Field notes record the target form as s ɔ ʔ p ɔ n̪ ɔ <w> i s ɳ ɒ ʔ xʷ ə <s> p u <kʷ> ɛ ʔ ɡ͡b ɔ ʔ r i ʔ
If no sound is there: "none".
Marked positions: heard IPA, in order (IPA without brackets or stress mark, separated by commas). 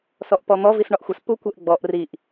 v, s, kʷ